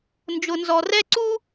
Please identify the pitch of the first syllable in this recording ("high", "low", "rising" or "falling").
low